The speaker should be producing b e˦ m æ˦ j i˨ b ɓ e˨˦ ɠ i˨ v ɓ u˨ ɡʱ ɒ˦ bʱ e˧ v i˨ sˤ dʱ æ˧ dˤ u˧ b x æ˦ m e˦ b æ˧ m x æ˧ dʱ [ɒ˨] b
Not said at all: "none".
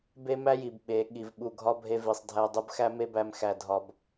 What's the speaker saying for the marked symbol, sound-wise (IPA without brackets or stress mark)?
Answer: ɒ˧